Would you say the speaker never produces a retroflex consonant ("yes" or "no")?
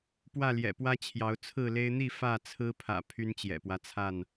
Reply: yes